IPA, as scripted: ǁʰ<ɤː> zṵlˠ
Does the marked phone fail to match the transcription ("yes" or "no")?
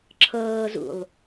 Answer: no